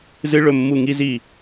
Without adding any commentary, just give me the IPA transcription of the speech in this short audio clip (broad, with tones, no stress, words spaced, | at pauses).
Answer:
zɨ˦˥ ɭɵ˦˨ mːu˦˨ŋi˦˥zi˦˨